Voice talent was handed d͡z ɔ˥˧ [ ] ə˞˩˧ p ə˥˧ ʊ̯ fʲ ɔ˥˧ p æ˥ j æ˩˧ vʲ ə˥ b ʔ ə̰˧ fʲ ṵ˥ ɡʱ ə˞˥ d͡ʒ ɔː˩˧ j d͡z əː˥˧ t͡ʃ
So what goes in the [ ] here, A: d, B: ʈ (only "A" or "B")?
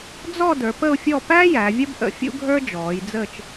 A